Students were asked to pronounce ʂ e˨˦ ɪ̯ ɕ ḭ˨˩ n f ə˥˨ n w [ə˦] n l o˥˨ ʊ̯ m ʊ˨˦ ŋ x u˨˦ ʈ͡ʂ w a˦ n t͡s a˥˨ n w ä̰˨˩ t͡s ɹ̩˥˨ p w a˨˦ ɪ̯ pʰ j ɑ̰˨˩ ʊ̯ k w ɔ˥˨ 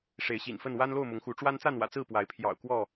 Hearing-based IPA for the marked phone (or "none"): a˦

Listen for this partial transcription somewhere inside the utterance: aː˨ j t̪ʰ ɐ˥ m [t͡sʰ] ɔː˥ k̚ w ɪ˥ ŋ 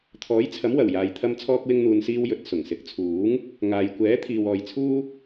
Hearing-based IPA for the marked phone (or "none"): t͡sʰ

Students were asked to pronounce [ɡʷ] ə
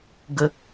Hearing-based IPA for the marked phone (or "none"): ɡ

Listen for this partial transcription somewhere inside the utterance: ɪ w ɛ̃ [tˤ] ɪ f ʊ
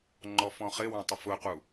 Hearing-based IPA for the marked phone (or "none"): tˤ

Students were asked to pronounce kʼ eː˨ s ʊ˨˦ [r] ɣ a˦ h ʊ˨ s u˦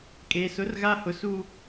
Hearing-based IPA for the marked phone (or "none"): r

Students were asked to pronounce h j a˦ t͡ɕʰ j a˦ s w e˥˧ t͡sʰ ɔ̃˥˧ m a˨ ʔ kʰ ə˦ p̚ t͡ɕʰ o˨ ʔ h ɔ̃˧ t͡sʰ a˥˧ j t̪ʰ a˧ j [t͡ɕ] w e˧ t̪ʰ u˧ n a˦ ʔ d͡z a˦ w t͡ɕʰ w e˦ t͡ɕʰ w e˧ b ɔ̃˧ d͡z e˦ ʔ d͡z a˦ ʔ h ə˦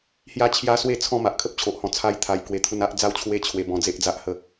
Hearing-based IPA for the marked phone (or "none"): k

